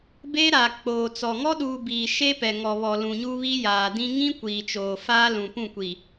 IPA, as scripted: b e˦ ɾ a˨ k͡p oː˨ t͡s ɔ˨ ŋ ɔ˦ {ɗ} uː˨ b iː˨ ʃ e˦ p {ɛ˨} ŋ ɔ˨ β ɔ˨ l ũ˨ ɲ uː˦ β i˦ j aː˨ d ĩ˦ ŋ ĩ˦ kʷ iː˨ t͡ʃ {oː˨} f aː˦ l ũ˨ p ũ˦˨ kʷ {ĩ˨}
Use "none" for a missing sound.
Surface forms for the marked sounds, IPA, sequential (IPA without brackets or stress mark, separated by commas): ɗ, ɛ˨, oː˨, i˨